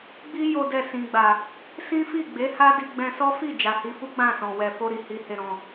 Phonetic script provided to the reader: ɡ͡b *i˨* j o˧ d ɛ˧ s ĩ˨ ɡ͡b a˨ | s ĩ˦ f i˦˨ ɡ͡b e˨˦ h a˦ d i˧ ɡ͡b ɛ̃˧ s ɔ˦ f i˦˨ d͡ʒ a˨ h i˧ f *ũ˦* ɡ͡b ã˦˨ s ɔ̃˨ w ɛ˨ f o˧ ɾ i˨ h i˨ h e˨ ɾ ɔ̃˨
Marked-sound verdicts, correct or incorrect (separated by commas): incorrect, incorrect